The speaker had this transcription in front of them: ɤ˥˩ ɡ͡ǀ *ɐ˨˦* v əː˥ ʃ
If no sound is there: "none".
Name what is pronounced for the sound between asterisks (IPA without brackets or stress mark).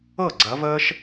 ɐ˨˦